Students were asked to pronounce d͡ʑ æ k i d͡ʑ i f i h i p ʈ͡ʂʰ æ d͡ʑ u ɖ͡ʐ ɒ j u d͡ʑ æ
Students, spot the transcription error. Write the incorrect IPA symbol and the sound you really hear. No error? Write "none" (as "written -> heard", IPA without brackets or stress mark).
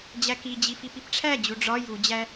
h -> p